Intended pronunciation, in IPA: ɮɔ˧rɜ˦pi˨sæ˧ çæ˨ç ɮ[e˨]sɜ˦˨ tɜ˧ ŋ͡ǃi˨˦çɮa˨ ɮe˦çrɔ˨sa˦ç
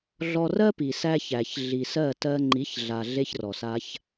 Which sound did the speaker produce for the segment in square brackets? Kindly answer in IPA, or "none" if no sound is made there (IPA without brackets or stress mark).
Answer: i˨